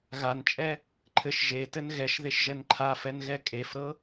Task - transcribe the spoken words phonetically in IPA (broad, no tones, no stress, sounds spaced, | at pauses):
ɣ a n t͡ʃʼ ɛ | ǃʰ ɘ ʃ ʒ e t ɘ n ɣ ɛ ʃ ð e ʃ ʒ ɛ n ǃʰ a f ɛ n ɣ ɛ kʼ e f ɾ ɤ